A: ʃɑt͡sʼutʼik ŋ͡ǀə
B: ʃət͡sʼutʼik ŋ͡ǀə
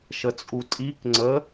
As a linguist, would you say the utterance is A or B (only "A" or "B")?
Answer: B